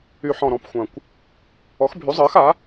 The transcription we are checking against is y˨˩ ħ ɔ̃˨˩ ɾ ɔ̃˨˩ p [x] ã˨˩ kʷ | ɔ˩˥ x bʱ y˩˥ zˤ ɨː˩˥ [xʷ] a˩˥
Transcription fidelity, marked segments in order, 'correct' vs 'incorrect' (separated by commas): incorrect, incorrect